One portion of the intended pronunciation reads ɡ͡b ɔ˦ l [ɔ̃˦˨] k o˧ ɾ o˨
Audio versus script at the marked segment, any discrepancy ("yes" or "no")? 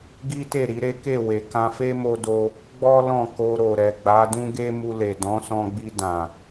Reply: no